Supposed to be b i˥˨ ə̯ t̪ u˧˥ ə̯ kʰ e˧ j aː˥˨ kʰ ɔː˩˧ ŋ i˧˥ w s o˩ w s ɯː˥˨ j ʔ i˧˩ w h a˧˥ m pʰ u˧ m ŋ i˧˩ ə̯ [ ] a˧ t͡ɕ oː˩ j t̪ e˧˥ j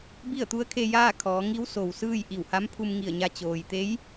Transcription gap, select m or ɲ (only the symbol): ɲ